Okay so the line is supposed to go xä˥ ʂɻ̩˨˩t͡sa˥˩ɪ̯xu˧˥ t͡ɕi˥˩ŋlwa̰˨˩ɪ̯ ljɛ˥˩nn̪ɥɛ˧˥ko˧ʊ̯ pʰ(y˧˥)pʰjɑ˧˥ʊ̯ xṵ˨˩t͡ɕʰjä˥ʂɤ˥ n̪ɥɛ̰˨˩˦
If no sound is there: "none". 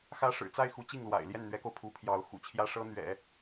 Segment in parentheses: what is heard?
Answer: u˧˥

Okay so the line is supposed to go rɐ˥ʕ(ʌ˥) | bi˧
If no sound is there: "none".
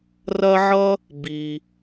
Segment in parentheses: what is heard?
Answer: ʌ˥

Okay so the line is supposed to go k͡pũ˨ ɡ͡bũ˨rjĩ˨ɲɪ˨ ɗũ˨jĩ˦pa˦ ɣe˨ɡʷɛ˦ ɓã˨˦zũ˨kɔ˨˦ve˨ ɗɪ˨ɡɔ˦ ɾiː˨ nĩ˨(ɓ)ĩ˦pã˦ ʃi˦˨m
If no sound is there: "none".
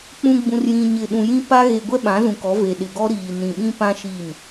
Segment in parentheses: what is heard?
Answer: ɓ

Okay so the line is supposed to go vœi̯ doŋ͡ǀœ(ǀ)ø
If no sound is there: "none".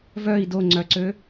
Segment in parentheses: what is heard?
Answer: ǀ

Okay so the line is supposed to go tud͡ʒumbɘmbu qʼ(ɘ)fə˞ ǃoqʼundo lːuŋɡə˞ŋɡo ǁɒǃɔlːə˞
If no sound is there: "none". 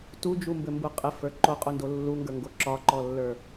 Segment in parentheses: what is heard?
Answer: ɘ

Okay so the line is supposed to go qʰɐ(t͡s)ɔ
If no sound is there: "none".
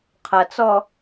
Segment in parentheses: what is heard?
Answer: t͡s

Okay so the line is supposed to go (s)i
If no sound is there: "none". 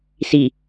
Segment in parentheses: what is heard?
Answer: s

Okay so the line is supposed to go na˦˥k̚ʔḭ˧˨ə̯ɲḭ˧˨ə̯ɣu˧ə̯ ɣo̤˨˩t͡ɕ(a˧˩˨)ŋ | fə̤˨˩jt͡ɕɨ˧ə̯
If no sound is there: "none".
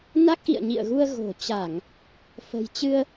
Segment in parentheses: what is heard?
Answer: a˧˩˨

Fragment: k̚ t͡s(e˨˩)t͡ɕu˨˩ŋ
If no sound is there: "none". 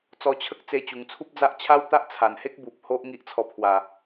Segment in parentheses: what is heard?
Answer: e˧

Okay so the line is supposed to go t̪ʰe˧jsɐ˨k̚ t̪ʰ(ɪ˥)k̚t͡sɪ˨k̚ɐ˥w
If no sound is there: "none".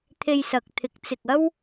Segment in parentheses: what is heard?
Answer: ɪ˨˥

